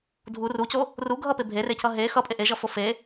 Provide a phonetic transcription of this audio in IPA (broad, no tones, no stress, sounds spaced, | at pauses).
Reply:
dʱ u r u c o | r u ɡʱ ʌ p e bʱ e r e cʰ ʌ ɦ e x ʌ pʼ e ʔ e ʒ ʌ f o f e